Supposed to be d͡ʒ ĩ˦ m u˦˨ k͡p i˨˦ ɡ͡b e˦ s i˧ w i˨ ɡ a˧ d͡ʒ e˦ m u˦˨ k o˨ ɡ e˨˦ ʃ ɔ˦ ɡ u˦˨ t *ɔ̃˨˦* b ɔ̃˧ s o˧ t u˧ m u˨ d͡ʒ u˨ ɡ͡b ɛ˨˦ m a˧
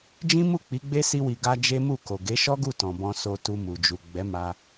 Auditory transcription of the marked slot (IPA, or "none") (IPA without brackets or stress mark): ɔ̃˨